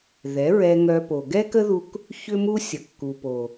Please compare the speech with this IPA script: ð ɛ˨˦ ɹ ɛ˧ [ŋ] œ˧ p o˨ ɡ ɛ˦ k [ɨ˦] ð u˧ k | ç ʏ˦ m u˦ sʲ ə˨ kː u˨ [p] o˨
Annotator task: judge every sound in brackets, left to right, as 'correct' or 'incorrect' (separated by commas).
correct, incorrect, correct